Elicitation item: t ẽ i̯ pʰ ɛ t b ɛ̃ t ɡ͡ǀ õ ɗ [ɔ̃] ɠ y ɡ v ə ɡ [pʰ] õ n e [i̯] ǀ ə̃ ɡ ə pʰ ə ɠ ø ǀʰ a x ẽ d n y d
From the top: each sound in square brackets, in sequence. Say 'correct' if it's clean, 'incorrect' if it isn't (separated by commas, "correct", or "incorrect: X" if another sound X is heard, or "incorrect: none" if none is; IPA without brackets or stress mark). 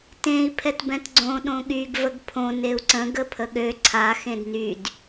incorrect: õ, correct, incorrect: u̯